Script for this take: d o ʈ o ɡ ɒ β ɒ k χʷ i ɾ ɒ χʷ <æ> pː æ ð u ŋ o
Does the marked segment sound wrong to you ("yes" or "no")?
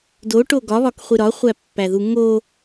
no